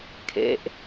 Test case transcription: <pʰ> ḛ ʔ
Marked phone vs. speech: incorrect: kʰ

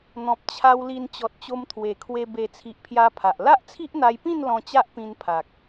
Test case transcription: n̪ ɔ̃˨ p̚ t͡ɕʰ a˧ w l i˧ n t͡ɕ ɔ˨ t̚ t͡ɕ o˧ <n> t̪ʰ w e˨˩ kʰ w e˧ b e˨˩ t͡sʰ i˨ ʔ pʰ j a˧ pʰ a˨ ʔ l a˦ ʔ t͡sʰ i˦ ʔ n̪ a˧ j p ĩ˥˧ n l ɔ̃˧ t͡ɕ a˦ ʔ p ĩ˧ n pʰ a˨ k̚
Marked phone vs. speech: incorrect: m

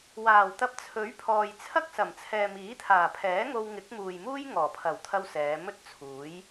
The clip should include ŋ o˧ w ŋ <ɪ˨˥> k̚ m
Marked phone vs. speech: correct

